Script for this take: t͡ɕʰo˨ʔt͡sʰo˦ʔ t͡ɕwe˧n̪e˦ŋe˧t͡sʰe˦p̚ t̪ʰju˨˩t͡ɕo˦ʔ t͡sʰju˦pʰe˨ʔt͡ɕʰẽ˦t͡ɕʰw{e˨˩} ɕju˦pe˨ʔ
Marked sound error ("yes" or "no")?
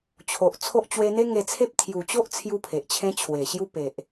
no